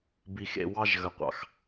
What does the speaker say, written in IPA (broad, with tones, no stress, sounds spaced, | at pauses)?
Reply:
b i˨ x ḛ˨ w ɑ˦ ʒ ɣ ə˨ qʷ ɑ̰˨ x